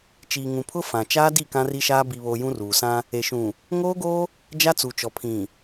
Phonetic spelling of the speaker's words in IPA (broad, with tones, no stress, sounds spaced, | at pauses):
t͡ʃ iː˨ ŋ ũ˨ pʰ ʊ˦ f ã˨ t͡ʃ aː˦ d i˦˨ k ã˦ r i˦ ʃ aː˦ b i˨ β o˨ j ũ˦ r uː˨ s ã˦ | e˨ ʃ ũ˨ | ŋ oː˦ ɡ oː˦ | d͡ʒ a˦ t͡s u˨ t͡ʃ ɔ˨ pʰ ĩ˨